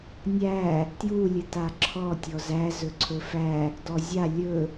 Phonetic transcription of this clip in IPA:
nʲ æ | t j u lʲ ɨ t a ǁʰ ɔ tʲ ɔ z æ z ɵ ǀʰ ɵ f æ | d ɔ zʲ a lʲ ɵ

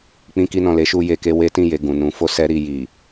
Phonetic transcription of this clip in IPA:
k͡p ĩ˧ k i˧ n ɔ̃˨ l e˨˦ ʃ u˧ j e˨ k e˧ w e˦ t ĩ˦˨ j e˨ ɡ ũ˨ n ũ˨˦ f o˦ s ɛ˦ ɾ i˧ j i˨

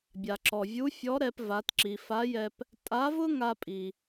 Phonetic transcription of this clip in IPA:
bʲ a˩ ǁ ɔ˩ vʲ u˧˥ fʲ ɔ˧˥ ɾ ɛ˧ p v a˩˧ t ǁ i˩ f a˧˥ j ɛ˧ p | tʼ a˧˥ v ʊ˥ ŋ a˧ pʼ i˩

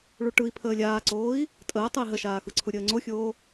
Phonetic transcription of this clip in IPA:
ɭ u ʈ ɯ i̯ pʰ əː lʲ aː ǀ oː i̯ | tʼ əː tˤ ɯ i̯ ɦ ə ʃ aː x ɯ ǀʰ u ɾʲ əː ŋ͡ǀ o xʲ oː

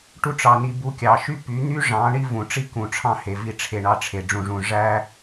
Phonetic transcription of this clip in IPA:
ʈ u˧ ʈ͡ʂ ɑ˨ n i˨ b u˧ kʲ ɑ˨ ʃ y˦ p y˨˦ n̪ y˦ ʐ ɑ̃˨˦ ɳ i˦ v ũ˨ ʈ͡ʂ i˦ k ũ˨ ʈ͡ʂʰ ɑ̃˦ h e˨ v i˧ ʈ͡ʂʰ e˨ ɳ ɑ˧ ʈ͡ʂʰ e˨ ɖ͡ʐ ũ˨ ʐ ũ˨ ʐ æ˦

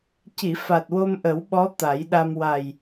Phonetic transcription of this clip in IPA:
c i˨˩˨ f a˨˩ t̚ w o˧ m ʔ ə˨˩˦ w ɓ ɔ˧˥ t̪ a˨˩˦ j ɗ a˧ m w a˨˩ j

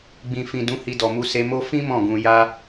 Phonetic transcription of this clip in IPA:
ɡ͡b ĩ˨ f ĩ˨ d ũ˧ h i˧ d ɔ˨ m u˧ s e˧ m o˦ f ĩ˦ m ɔ̃˦˨ ɡ ũ˧ j a˦

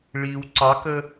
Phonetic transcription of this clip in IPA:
ɭ i w ǀ ɑ k ə

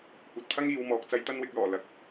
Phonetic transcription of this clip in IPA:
kʷ ɐ˨ t̚ pʰ ɐ˥ ŋ iː˨˧ w m ɔː˨ k̚ t͡s ɐ˥ j t̪ ɐ˥ n w ɪ˧ k̚ l ɔː˨˩ l ɐ˨˥ k̚

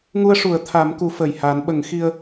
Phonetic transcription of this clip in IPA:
ŋ u˧ ə̯ ʂ u˨˩˦ ə̯ t̪ʰ a˨˩˦ m k u˨˩˦ f əː˨˩ j h a˨˩˦ n ɓ ə˨˩˦ ŋ x i˧ ə̯

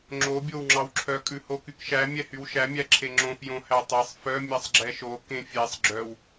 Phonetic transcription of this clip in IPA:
ŋ͡ǁ o bʲ o w ŋ͡ǁ ɑ w ǁʰ œ kʼ ʉ h o k y k ʃ æ mʲ ɛ h y w ʃ æ mʲ æ ǁʰ e ŋ͡ǁ õ f j õ h æ tˤ e sˤ f œ mʲ ɛ sˤ ɡ͡ǁ ɛ ʃ o k ẽ fʲ e sˤ ɡ͡ǁ œ w

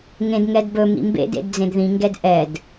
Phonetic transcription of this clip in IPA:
ŋ ẽ d ŋ ɛ d b ɵ m ḭ m b ḛ d ḛ d d͡z ẽ d ð ĩ ŋ ɡ ɛ d ʔ ɛ d

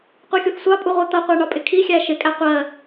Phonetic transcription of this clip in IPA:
qʷ ɛ xʲ u θ sʷ ɑ pʼ u ʁʷ ɜ t̪ ʌ qʷ æ ɳ ɒ pʼ ɪ kʰ i xʲ æ ʃ ɪ kʼ æ qʷ ɜ

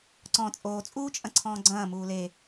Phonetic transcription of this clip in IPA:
ǀ ɔ̃ t͡sʼ oː t͡sʼ uː t͡ʃʼ ɐ̃ ǀʰ ɔ̃ː ɡ͡ǀ ɐ̃ː m uː l e

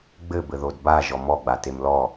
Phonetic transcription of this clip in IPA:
ɡ͡b ɘ b ɘ ð o d b a ʒ ɔ m ɔ ɡ͡b a t e m l ɔ

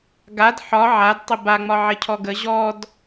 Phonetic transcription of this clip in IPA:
ɡ a d ħ ɒ ʕ a d tˤ ɪ b a ŋ͡m ɒ ʕ ɪ cʰ ɔ ɡ ə ʑ ɔ d

